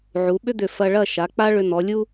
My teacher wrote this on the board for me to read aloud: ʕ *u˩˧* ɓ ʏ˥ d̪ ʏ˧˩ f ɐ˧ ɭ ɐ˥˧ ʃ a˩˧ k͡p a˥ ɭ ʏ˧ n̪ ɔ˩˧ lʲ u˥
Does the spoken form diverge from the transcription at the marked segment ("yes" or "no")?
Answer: no